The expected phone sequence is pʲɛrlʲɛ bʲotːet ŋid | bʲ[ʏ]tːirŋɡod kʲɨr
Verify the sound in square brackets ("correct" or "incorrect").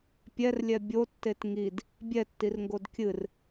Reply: incorrect